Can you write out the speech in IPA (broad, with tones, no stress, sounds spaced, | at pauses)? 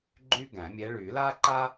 ɡ͡ǃ y˥ ɡ æ̃˨˩˦ mʲ ɛ˧˥ ɭ y˨˩˦ l a˥ ǃ a˥